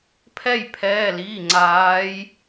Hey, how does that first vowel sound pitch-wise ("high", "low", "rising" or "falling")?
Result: falling